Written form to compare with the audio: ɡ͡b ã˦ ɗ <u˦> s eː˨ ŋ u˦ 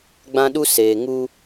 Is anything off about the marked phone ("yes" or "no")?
no